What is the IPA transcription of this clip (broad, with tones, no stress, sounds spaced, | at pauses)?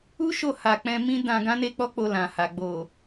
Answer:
u˦ ʃ o˧ h a˨ k͡p ɛ̃˧ m ĩ˦ d ã˧ ɡ ã˦ n e˦ k͡p ɔ˦ k͡p o˧ l ã˨ h a˨ ɡ͡b o˨